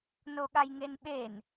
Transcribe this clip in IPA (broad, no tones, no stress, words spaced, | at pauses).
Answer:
noɠajŋenɓen